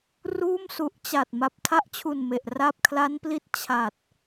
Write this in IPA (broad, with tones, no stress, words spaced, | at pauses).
ruː˥˩msu˨˩ʔt͡ɕa˨˩t̚ ma˨˩p̚tʰa˥˩ʔt͡ɕʰu˨˩n me˨˩ʔ ra˥˩p̚ kʰla˦˥npli˦˥t̚ t͡ɕʰa˨˩t̚